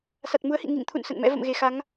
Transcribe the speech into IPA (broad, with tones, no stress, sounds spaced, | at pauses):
s a˨˩ t̚ m u˨˦ ə̯ h ḭ˧˨ ŋ ḭ˧˨ ŋ t̪ʰ ṵ˧˨ n s ə̰˧˨ n m ɛ̰˧˥ v ə̰˧˨ m ɣ e˨˩ x a˨˦ ŋ